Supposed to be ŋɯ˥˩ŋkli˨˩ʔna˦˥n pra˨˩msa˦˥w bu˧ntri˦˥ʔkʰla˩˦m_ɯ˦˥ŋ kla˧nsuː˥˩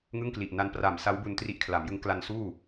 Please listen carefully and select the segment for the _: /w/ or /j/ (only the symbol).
j